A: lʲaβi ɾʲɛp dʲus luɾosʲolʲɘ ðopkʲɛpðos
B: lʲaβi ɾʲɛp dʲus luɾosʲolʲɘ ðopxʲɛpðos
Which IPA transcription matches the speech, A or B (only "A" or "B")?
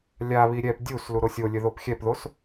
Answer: B